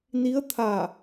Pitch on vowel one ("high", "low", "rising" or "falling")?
rising